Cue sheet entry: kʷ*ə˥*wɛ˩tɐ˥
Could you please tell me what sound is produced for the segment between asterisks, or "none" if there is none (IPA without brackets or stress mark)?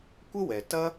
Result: ə˥